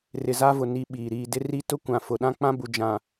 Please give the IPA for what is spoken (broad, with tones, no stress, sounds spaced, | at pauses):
r ɪ˨ z a˦ v ʊ˨ n i˦ ɓ iː˨ ɾ iː˨ d ɪ˦ r i˦ t ʊ˦ kʷ ã˨ f ʊ˨ ɗ ã˦ k͡p ã˦ b u˨ d͡ʒ ã˨